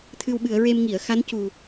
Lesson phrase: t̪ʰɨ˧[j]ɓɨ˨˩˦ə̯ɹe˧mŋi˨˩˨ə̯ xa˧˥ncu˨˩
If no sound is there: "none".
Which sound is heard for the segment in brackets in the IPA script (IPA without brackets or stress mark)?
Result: w